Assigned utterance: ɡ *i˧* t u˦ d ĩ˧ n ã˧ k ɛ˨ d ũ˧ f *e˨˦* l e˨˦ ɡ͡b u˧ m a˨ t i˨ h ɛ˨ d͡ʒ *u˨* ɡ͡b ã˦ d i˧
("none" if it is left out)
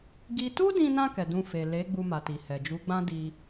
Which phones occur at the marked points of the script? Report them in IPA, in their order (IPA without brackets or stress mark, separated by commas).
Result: i˦, e˨, u˨˦